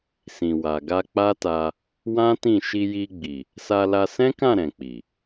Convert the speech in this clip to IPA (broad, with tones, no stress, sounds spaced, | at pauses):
s ĩ˨ w a˨ ɡ a˧ k͡p a˦ t a˧ | w ã˦ t ĩ˦˨ ʃ i˧ j i˧ ɡ͡b i˨ | s a˧ l a˧ s ɛ̃˦ k ã˦˨ ɾ ɛ̃˨ k͡p i˨